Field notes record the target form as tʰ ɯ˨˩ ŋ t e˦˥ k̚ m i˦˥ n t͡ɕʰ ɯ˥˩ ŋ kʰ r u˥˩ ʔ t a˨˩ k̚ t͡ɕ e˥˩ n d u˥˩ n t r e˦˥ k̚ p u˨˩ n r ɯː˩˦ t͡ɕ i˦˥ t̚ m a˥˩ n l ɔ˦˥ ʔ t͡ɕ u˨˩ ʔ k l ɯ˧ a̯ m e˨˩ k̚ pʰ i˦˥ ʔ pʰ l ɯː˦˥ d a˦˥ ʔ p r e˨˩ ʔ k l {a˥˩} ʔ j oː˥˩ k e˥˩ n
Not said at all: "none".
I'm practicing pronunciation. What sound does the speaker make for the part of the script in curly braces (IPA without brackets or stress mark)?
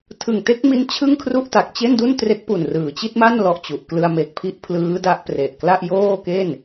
a˥˩